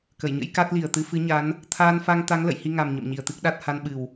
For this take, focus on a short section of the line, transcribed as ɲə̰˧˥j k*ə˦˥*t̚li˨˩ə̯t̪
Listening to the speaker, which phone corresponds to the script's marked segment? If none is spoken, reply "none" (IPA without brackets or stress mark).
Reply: a˦˥